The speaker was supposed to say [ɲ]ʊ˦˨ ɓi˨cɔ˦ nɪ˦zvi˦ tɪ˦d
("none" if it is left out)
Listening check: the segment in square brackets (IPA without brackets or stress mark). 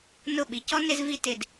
n